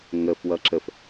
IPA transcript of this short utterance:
ŋəfwʌ ǁəf

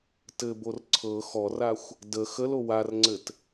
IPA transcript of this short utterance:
tɘbor ǀʰɤ xɔraxʷ | də xəlo warŋ͡ǀɘt

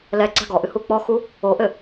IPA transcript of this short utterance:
lɛɡ͡ǀa̤ ɡɔʔɨhu k͡pɔxu | oʔɘ

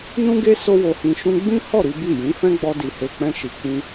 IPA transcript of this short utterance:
nũ˦ɡe˦ so˦wo˧hĩ˧ ʃũ˧ɡ͡bĩ˦hɔ˦˨ ɾi˨˦bi˦˨ jĩ˨˦ fɛ̃˦ɡ͡bɔ˧ di˨he˨ k͡pɛ̃˧ʃi˨ k͡pĩ˧

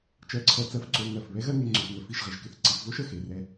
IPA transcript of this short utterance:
t͡ʃɜ˧ǀʰɜ˧˩t͡sɜ˥f ǀo˧ ŋɜ˧˩f βɛ˥ɣɜ˥ŋe˧ ŋ͡ǀø˧fŋə˧fi˥˧ʃʁɪ˩˧ʒ kɪ˧θǀi˩˧fvo˥ʃ ə˧ xe˩˧rɛ˧

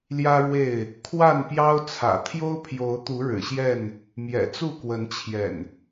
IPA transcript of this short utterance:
ljä˦ɻwe˥˨ɪ̯ | kʰwa˥˨npjɑ˦ʊ̯t͡sʰä̰˨˩ t̪ʰjo˦ʊ̯pʰjo˨˦ʊ̯t̪u˨˦ ɻɻ̩˨˩ɕjɛ˥˨n | mjɛ̰˨˩t͡su˥˨kwə˨˦nt͡ɕʰjɛ̰˨˩n

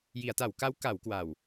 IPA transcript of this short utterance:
ji˩˦a̯ta˩˦wka˦˥w ka˩˦wkwa˨˩w

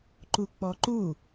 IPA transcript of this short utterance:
ǃuk͡pɔǃu

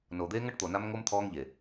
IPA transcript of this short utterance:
no˨d̪e˦ ŋɐ˦ʈt̪o˨na˦mŋo˦m t̪ʰɔː˦ŋʎe˨

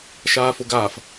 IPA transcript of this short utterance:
ʃaːfʊɡaːf

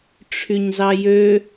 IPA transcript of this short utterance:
ʈ͡ʂʰyɲzɑjø

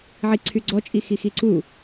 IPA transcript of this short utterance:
ʕiǀʰyɡ͡ǀɔ t͡ʃʼixixiǀu

